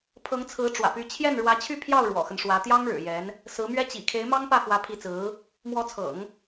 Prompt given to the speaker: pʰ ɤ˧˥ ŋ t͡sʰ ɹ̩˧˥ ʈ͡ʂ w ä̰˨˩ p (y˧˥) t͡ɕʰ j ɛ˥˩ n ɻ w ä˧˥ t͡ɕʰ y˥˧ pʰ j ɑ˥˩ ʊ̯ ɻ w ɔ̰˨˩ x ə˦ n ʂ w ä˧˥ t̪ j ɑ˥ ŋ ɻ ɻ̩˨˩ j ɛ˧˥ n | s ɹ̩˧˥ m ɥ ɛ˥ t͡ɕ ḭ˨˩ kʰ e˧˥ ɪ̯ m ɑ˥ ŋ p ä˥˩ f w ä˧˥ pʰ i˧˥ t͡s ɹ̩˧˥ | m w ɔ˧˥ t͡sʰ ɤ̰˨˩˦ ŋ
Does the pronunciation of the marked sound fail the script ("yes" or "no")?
no